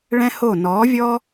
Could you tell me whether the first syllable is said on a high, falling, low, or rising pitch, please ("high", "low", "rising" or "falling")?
high